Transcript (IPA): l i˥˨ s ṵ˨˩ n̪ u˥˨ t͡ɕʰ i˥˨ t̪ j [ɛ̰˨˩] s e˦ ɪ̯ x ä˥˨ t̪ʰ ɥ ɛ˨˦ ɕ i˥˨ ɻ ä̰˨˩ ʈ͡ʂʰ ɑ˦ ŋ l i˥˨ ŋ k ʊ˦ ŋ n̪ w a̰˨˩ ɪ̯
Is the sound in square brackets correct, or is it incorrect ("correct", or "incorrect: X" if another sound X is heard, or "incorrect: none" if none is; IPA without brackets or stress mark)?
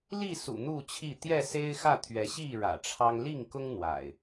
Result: incorrect: ɛ˥˨